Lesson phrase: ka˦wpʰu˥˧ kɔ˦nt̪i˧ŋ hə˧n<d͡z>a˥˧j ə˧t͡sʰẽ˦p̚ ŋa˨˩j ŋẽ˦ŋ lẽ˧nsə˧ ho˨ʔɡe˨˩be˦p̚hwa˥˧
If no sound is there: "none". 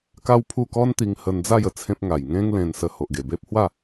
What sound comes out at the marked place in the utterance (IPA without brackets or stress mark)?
d͡z